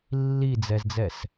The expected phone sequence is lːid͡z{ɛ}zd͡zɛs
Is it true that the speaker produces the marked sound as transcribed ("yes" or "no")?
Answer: yes